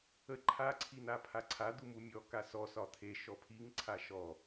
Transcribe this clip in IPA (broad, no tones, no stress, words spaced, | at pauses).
ə ǃʰa ǀʰin̪apʰaǀʰa d̪umumʲɔ kasɔ sɒt̪ʰe ʃɔpʰiŋ ǀʰaʃɔ